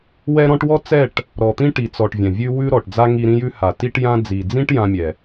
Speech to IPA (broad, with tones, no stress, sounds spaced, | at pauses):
w ɛ˦ ɾ ɔ̃˦ ʈ w ɔ˦ t͡s ɛ˦˨ ʈ | ɾ ɔ˨ t̪ ĩ˦ ʈ i˨ t͡s ɔ˨ ʈ vʲ ɛ̃˨ vʲ ʉ˦ w ʉ˦ ɾ ɔ˨ ʈ d͡z a˦ ŋ i˧ ɾ ĩ˦ j ʉ˦ h a˨ t i˦ ʈ j ã˦ d͡z i˨ d͡z ĩ˦ ʈ j ã˦ mʲ ɛ˨